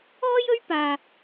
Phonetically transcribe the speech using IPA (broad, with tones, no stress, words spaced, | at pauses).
ɔː˥jɵ˥ɥpaː˧